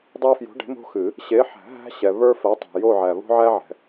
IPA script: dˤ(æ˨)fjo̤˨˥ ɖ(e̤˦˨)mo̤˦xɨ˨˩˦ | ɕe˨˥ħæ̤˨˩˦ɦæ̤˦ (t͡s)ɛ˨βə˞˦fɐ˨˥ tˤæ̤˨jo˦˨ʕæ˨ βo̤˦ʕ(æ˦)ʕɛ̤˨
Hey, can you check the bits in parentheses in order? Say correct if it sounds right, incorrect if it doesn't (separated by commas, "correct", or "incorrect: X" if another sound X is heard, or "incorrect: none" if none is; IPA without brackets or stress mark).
incorrect: æ˦, incorrect: e̤˨˥, incorrect: ɕ, correct